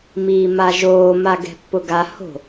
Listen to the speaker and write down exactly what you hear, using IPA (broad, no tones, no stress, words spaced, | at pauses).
miːmaʒoː maɡɛ̤pːʊɡa ho̤